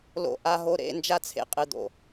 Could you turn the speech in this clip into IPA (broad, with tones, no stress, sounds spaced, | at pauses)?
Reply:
l o̰˨ ʔ a˨ ɦ o˨ ɾ ḛ˦˨ n d͡ʒ a˦ t͡sʰ ḛ˨ qʼ ɨ˨ d̪ o̰˨